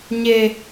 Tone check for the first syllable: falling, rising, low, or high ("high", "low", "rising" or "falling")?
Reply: high